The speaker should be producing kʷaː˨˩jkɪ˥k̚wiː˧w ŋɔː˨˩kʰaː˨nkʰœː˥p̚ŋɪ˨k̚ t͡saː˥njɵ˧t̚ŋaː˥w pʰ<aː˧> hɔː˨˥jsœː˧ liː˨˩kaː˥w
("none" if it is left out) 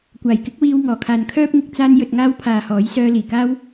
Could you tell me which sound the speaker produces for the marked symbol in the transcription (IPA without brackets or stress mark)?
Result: aː˨